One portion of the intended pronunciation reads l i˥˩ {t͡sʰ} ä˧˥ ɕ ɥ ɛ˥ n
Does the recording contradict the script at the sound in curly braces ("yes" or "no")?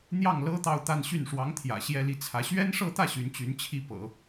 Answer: no